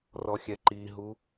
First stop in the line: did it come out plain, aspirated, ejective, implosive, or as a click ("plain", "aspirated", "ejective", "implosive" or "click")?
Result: click